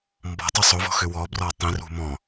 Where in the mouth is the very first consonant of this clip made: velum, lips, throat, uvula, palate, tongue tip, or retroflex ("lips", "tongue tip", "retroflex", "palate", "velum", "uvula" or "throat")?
lips